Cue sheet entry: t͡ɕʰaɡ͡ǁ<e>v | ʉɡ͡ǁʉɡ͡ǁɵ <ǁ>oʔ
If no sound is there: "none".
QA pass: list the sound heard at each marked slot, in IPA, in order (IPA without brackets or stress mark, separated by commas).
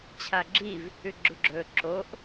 i, ǁ